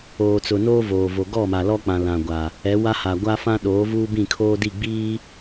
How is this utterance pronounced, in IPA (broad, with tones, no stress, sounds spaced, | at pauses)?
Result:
oː˨ t͡s ʊ˨ n oː˦ v oː˨ v o˨ ɡ ɔ˦˨ m a˨ l ɔ˦ k͡p ã˨ l ã˨ ɡʷ a˨ | ɛ˨˦ w a˦ h a˨ ɡʷ a˦ f ã˦ ɗ oː˨˦ v uː˦ b ĩ˦˨ kʰ oː˦ d i˦˨ ɡ͡b iː˦